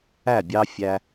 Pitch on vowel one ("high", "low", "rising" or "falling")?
falling